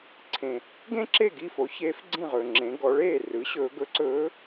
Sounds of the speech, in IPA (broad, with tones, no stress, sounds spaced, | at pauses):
ǀʰ ẽ˩ | ɡ ẽ˥ ǁ e˥˩ ɡ i˥˩ f o˩˥ ç eː˧˥ f ɡ͡ǀ ĩ˥˩ ʁ ɵː˩ ŋ͡ǁ ẽ˩˧ ɡ ɔ˩˧ ɭ eː˥˩ r ɯ˩˥ ɕ ɵː˩˧ ɡ ɵ˧˥ ǀ ɵː˧˥